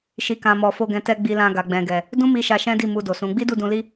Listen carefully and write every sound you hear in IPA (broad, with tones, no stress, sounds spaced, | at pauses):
ʃ i˨ k ã˨ m ɔ˨ f o˧ ɡ ɛ̃˨ t ɛ˧ ɡ͡b i˧ l ã˧ ɡ a˨ ɡ͡b ɛ̃˨ ɡ ɛ˨ | d ũ˦ m i˧ ʃ a˧ ʃ ɛ̃˦ d i˦˨ m u˧ d o˨ s ũ˨˦ ɡ͡b i˦ d u˦˨ d ũ˧ l i˦